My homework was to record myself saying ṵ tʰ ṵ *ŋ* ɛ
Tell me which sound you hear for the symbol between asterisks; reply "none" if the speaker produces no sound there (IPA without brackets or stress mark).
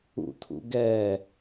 ɡ